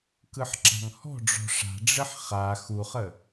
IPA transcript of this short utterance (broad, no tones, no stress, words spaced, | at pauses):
kɯħǁa̤ŋhɔ̤ɖ͡ʐɔ̤ ʂa̤ɖ͡ʐɘħ χa xuχə